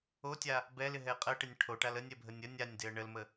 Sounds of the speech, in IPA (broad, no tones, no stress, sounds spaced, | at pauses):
o tʲ a | b ɛ l ɪ ɦ ɛ qʼ ə ʈ ɪ nʲ ʈʰ o ʈ a l ə nʲ ɛ bʱ ə nʲ ə nʲ a nʲ d ɪ ə̯ ɳ ə l m ə